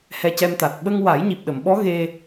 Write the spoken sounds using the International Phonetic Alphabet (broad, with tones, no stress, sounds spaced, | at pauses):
h ɛ˧ c ɛ˧ m t̪ a˨˩ t̚ ɓ ə˧ ŋ w a˨˩˦ j ɲ i˨˩ p̚ ɗ ə˨˩˨ m ɓ ɔ˧˥ ɣ e˧